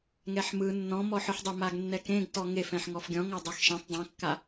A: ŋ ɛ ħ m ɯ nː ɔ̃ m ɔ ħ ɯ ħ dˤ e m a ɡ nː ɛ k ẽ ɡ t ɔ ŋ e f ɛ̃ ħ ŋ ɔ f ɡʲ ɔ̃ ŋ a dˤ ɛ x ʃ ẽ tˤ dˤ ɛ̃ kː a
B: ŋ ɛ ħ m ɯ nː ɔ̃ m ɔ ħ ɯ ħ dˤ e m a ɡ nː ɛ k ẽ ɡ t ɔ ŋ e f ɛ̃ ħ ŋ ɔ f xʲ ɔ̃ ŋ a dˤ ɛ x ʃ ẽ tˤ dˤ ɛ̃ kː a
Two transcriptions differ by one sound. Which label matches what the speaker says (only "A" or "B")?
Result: A